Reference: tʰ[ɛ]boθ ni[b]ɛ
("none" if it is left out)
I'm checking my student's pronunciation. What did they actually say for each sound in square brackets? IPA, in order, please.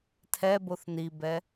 ɛ, b

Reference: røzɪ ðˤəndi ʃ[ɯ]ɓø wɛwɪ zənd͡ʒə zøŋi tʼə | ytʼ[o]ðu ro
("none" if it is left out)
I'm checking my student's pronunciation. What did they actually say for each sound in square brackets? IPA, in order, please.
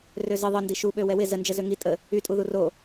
u, u

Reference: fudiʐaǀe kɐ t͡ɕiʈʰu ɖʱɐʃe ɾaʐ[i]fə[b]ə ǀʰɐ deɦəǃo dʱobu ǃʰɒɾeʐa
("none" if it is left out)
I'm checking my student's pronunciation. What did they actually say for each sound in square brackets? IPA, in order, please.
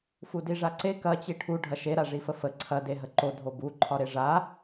i, f

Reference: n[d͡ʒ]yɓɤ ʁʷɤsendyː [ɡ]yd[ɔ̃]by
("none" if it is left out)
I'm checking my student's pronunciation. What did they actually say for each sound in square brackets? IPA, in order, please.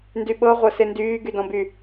d, ɡ, ɔ̃

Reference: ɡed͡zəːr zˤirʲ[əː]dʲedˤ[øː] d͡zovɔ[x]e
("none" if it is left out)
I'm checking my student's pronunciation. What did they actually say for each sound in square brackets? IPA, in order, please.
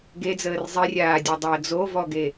aː, əː, ɡ

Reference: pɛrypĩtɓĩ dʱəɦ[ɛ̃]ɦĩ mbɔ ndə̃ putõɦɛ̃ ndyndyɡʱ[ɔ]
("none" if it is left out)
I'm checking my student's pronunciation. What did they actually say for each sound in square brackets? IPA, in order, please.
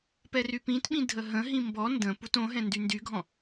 ə̃, ɔ̃

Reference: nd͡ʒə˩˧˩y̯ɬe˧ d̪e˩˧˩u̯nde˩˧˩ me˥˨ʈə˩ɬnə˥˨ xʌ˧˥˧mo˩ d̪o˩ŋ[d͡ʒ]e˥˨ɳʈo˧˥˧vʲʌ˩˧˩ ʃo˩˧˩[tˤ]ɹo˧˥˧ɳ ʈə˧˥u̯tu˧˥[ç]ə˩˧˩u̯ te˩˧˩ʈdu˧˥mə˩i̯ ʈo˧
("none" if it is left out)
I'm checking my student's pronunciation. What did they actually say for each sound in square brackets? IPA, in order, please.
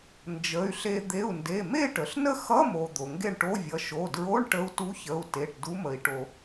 ɡ, d, ç

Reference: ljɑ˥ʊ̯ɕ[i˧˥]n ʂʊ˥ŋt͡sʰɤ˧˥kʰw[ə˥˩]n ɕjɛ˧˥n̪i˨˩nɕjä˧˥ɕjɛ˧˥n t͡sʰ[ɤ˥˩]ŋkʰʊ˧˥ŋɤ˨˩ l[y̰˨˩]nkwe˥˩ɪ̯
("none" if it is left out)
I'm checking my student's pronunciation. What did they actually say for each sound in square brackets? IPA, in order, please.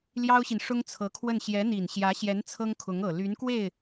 i˨, ə˥˩, ɤ˥, y˧˥

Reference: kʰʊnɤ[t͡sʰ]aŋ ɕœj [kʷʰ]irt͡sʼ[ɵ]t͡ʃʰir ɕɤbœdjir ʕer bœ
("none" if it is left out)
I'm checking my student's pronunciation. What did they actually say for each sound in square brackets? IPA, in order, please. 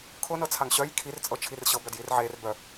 t͡sʰ, kʰ, ɤ

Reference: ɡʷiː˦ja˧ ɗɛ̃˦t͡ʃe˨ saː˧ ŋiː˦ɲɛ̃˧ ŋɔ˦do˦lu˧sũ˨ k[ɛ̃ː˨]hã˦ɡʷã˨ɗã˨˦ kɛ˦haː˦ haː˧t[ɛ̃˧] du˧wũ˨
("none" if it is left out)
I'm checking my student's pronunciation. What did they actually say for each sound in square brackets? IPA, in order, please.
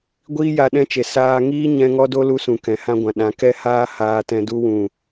ɛ̃˨, ɛ̃˧

